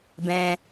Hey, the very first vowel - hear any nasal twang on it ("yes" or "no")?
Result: yes